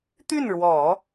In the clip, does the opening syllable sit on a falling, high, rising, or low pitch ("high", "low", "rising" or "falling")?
falling